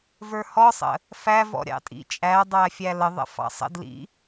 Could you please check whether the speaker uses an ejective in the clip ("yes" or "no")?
yes